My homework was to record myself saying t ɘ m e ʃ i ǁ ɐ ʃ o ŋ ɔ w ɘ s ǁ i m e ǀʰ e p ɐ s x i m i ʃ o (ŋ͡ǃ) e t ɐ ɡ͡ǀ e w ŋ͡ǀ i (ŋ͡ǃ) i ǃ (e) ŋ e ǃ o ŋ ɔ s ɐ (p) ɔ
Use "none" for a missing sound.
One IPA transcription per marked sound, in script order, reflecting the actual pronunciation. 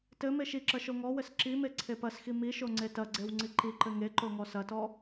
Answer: ŋ͡ǀ, ǃ, ɘ, t

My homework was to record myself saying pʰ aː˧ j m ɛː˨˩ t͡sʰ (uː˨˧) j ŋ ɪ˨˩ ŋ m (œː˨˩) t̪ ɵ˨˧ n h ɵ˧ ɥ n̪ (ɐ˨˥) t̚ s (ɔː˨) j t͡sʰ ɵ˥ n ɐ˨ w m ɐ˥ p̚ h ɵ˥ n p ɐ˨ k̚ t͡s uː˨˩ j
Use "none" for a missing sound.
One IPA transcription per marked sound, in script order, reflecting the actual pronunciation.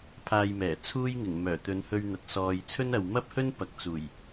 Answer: uː˥, œː˨˩, ɐ˨, ɔː˨

